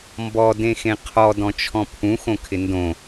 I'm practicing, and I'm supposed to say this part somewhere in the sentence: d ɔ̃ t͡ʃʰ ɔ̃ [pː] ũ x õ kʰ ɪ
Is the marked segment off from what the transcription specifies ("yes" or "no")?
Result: yes